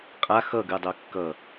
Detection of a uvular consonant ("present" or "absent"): present